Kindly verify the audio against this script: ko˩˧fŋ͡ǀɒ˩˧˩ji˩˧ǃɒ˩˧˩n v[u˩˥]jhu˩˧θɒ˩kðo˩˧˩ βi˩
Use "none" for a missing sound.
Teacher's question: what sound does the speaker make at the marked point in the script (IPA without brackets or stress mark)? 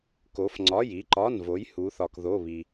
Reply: o˩˥